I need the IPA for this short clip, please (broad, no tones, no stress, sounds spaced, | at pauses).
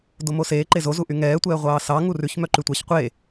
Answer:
d o m o s eː ǃ e z o z u ʔ y ŋ ɛː tʷ ɛː ʁʷ ɑː s ɑ ŋ u r ʉ ç m œ ǃ y tʷ ɑ ç qʷ e